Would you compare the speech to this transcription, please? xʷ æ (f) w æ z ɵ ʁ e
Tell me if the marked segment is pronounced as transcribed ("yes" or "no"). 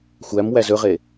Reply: no